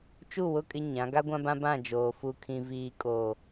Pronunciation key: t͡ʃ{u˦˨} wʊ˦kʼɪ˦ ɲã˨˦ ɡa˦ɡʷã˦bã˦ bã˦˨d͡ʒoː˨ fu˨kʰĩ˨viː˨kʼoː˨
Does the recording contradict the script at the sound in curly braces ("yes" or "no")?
no